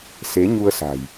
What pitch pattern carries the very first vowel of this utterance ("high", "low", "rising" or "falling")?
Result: rising